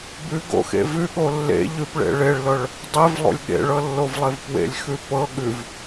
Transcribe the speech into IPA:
bʉɡo̰xḛ vʉɠo lːḛ ʎʉpɭḛ ɭeɭlɤɭ | dˤevlˠo̰lʲ ɠḛɭɤlːovlˠev pwḛlʲxʉ pɤ ɠʉv

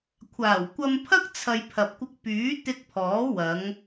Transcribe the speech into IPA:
kʷʰaː˨˩wkʷɐ˧mpʰɐ˥k̚ t͡sʰɐ˧j pʰɐ˨p̚kʷɪ˧k̚ pyː˨˥ t̪ɪ˧k̚pʰɔː˨˥wɐ˨˧ŋ

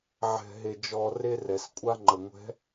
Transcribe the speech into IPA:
ʕɛ̤˨ɦe˨ d͡ʒɔ˨ re˦rɛ˨s kʷʼa˦ ŋ͡ǃə˨ ŋʷɛ̤˨˦

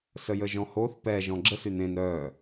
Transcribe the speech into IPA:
səjəʒɔ̃hoθ pɛ ʒɔ̃ɡ͡ǁəs ynẽn ɾœː

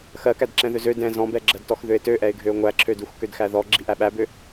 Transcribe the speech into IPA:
xɜkædǁɛ̃ðøz ø dɛ̃ zɔ̃bɛɡ͡ǁɜdtɔx ðøɪ̯tøʔɛɪ̯ɡʱøʊ̯ ŋʷæǁʰødux kødxæðɔ ɡ͡ǁiʔæɓæbø

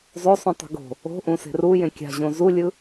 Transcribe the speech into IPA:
zˤosˤũ tˤṳɡo̤ | o̤ʔũse̤r u jẽkʲa̤ʑõ zulʲɯ

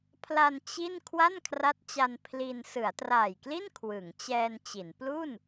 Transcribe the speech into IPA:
pʰla˧n t͡ɕi˥˩n kʰwa˥˩nkʰra˦˥t̚t͡ɕa˧n pʰli˧n sɯ˩˦a̯traː˨˩jkli˥˩n kʰwɯ˩˦ŋt͡ɕɛː˧nt͡ɕi˩˦n plu˥˩n

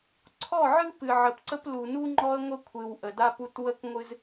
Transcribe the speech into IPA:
ǀʰɔ˦˨ʕɨ˦ pɨ˨ʕə˨pǀə˦plu˨ nu˦ŋ͡ǃɔ˦ə̯ŋʷə˦ kʷʰɨ˨wʔə˨da˦pu˦t wə˦kŋʷɨ˦z

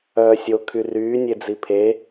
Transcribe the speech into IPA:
œːsʲo kʰyryː nʲed͡zipʰe

